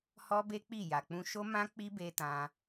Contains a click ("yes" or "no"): no